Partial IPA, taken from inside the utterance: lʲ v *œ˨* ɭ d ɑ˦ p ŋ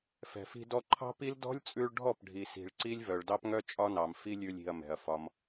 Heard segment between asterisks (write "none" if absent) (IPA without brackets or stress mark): œ˨